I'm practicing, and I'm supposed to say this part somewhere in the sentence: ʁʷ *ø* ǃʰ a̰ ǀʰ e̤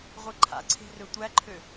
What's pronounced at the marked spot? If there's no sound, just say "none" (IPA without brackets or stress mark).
e